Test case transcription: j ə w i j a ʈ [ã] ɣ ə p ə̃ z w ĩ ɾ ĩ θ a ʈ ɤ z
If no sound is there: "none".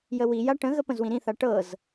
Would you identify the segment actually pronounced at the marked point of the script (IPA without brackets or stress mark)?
ə̃